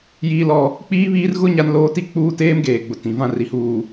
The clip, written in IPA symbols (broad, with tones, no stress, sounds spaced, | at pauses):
j iː˦ l ɔ˦ | k͡p iː˦ β iː˦ r ɣ ʊ˦ ɲ a˦ n l oː˦ t i˦ k͡p uː˦ t eː˦ m ɡ eː˨ ɡ͡b ʊ˨ t ĩ˨ v ã˦˨ r i˨ h uː˨